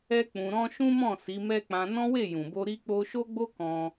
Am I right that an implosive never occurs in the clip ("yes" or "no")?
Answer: yes